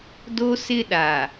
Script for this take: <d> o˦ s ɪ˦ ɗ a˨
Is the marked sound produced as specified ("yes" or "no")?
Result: yes